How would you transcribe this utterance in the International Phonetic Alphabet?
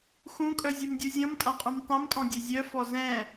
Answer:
x ũ kʼ œ zʲ u m dʲ u zʲ ɔ̃ m tʼ ã qʼ ũ m tˤ œ̃ m tʼ ɔ̃ dʲ ɛ zʲ œ f ɔ z ɛ̃

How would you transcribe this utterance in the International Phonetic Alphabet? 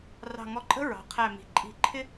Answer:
r ɑ̤˧˩ ŋ ɔ˧ ǃʼ ə̤˥ ɹ ɑ̤˩˧ qʰ æ˧˩ m i̤˩˧ ǃʼ i̤˧˩ ǃʰ ɪ˥

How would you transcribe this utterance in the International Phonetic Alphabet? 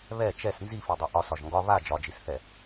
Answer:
β ɛ t͡ʃ ɛ s n z i f i dˤ ɛ ʔ ɒ s ɒ ʒ ŋ ɡ ɒ β a d͡ʒ ɒ d͡ʒ i s θ ɛ

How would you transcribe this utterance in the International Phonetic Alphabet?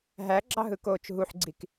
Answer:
ɦ æ ɡ͡ǁ ɑ ɦ ɯ k oː t͡ʃ ɦ u ħ ɡ͡ǀ i k

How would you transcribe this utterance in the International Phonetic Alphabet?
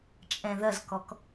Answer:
t͡ʃʼ ɛ̃ ð ɐ z k ɔ k

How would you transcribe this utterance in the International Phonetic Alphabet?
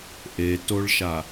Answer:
ʔ e t o ɭ ʃ a

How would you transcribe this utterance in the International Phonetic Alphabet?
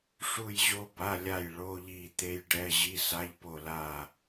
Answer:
ʂ u˦˨ j ʑ o˦˥ b a˧˥˧ lʲ a˦˨ j ɭ o˧˥˧ ʎ i˦˨ t̪ e˦˥ j ɖ ɛ˧˥˧ ʑ i˧˥˧ s a˧˥˧ ʎ p o˦˨ l a˦˨

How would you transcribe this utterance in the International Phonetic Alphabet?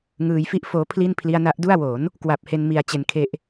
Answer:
ŋ ɯː˧ j f i˥˩ ʔ f oː˦˥ pʰ l i˥˩ n pʰ l i˧ a̯ n a˦˥ ʔ d u˥˩ a̯ w o˩˦ n | k w a˨˩ p̚ h e˧ n m i˧ a̯ t͡ɕ e˧ n kʰ e˦˥ ʔ

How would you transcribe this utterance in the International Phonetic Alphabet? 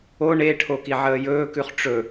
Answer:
o ɳ e ʈʰ o k i ʕ əː j ɵː k ʉ χ ʈ͡ʂ ɵ

